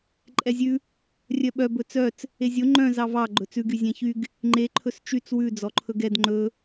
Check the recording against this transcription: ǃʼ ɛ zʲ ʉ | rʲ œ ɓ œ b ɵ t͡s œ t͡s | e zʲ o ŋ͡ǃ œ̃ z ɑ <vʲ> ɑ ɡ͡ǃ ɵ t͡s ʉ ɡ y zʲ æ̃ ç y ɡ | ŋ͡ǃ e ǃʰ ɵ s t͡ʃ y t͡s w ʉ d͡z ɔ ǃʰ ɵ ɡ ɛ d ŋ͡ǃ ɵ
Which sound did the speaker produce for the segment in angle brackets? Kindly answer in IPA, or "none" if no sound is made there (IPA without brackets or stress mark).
v